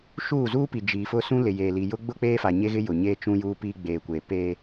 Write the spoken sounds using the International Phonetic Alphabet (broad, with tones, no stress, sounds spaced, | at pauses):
ʃ uː˦˨ z uː˦ p i˨ d͡ʒ iː˨ f ʊ˦ s ũ˦ l ɪ˨ j eː˨ l i˨ j ʊ˦ ɡ͡b ʊ˦ k͡p eː˦ f a˨ ɲ e˦ ɣ ɪ˦ j ʊ˨ ɲ e˦ t͡ʃ ũ˦ j uː˦ p iː˦ ɡ͡b eː˨ kʷ eː˨ p eː˦